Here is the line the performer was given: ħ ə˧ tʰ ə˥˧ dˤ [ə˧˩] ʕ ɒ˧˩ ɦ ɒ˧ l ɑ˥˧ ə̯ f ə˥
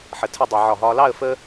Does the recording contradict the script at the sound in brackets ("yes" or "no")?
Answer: yes